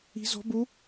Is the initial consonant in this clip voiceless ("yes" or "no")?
no